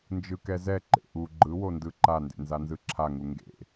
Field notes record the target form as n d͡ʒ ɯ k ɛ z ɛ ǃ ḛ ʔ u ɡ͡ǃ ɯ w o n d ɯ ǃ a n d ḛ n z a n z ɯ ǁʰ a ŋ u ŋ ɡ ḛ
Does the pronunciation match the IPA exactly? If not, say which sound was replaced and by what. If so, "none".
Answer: none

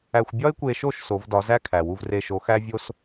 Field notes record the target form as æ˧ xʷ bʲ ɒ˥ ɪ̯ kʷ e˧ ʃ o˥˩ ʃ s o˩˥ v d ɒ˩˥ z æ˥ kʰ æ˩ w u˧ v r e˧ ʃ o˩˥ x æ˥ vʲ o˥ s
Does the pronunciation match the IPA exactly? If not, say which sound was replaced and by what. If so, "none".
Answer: none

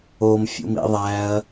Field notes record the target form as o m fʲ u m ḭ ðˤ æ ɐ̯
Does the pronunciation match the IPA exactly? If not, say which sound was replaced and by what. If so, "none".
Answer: u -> ṵ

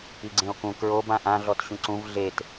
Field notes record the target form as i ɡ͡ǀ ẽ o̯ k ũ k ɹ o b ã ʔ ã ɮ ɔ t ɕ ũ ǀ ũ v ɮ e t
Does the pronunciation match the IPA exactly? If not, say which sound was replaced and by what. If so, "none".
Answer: none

